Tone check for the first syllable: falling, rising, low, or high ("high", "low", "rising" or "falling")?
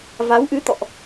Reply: rising